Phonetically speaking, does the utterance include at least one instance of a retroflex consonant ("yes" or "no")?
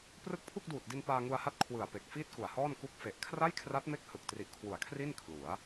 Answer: no